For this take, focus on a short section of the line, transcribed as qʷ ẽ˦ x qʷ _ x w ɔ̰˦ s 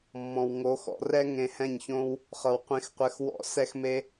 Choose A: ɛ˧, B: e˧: A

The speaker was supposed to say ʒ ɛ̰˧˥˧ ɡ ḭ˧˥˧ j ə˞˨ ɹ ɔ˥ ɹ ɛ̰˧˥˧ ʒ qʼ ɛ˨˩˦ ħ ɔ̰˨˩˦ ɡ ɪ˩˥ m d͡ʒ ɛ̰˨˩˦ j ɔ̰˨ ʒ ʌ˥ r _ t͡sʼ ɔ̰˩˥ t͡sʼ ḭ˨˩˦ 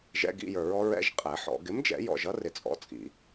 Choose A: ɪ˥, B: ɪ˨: B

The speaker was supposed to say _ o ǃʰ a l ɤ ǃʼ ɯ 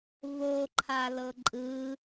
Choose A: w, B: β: B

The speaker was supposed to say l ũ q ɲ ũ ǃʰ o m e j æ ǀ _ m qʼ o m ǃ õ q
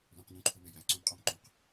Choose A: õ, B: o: A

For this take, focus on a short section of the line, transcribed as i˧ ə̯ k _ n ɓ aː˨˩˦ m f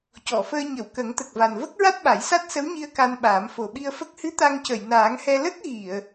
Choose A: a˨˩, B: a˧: B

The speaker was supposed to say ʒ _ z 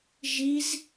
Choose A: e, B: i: B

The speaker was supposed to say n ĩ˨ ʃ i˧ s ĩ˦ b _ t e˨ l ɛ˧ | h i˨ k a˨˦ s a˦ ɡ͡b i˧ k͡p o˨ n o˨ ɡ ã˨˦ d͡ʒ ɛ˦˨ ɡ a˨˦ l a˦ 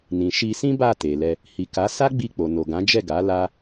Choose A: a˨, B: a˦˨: B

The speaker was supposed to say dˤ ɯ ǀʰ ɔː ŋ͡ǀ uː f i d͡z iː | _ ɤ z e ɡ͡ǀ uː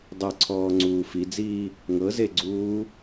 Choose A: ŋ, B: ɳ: A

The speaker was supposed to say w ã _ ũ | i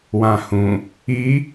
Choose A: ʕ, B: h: B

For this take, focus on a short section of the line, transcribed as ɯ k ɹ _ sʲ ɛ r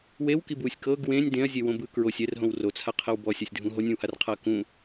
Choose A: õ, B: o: B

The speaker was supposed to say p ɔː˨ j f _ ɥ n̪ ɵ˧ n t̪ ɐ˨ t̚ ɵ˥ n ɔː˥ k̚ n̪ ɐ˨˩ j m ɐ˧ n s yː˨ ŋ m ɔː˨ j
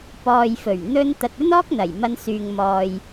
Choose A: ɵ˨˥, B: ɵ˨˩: B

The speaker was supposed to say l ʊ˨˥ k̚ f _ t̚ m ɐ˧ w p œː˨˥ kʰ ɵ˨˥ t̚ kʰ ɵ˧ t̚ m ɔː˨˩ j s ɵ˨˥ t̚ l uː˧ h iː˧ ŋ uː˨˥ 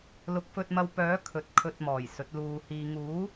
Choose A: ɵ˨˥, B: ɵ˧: B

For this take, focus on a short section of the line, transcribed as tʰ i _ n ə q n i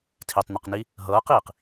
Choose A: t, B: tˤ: B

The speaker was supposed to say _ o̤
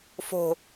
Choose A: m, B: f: B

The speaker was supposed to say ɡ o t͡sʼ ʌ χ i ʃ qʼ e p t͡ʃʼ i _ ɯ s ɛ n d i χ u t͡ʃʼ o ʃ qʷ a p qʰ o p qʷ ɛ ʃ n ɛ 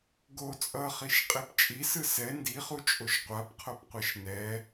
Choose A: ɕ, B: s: B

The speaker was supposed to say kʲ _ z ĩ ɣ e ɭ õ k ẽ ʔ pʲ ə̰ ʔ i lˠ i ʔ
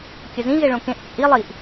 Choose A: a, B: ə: B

